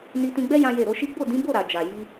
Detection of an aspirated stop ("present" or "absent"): absent